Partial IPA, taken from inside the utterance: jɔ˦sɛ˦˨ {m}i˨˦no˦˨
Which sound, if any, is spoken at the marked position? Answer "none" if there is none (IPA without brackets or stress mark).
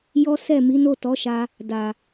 m